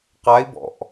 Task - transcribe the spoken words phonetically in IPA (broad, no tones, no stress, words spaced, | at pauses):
qai̯ bɔ̰ʔ